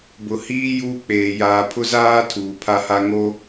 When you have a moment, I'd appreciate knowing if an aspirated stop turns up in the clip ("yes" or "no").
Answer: yes